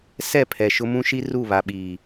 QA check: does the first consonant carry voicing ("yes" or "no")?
no